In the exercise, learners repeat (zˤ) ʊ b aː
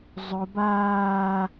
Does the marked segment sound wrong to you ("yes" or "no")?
no